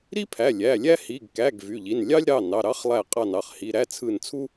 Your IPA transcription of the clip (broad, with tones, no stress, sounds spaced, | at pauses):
ɾ i˥ pʰ æ˩˧˩ lʲ æ˩˧˩ lʲ æ˥ h i˩˧˩ ɡ k æ˩˧˩ ɡ v y˩˧˩ ʎ i˩˧˩ n lʲ ɑ˥ lʲ ɾ ɑ˩˧˩ n ɑ˩˧˩ ɾ ɑ˥ χ lˠ æ˧˩ qʼ ɑ˧˩ n ɑ˧˩ χ h i˩˧˩ ɾ æ˥ t͡sʰ ɯ˧˩ n t͡sʰ u˥